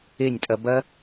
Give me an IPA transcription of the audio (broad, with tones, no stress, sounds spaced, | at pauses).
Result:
e˦˨ nʲ tʼ ɐ˧ b ɐ˦